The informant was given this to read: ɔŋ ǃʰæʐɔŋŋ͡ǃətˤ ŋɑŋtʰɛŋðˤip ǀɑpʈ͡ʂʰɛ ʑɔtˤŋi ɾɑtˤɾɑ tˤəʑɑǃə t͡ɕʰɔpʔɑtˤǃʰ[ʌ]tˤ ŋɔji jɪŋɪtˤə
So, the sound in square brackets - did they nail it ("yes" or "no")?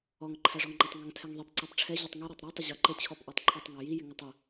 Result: yes